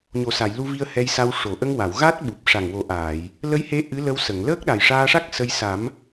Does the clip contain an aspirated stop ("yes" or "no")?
no